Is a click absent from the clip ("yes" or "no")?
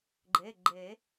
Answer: no